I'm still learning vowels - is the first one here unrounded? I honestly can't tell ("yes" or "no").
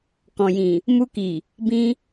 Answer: no